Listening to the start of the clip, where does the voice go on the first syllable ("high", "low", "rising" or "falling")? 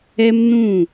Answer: high